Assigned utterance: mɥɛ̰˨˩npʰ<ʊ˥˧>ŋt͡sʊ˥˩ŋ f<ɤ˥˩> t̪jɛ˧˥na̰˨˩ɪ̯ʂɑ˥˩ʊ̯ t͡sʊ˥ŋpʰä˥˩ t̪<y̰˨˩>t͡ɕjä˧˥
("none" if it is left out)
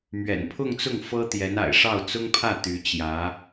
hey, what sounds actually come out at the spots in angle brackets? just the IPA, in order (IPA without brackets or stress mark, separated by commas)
ʊ˥˧, ɤ˥, y˧˥